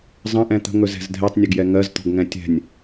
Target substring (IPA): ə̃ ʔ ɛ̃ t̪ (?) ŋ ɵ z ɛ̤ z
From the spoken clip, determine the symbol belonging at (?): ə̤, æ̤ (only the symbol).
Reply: ə̤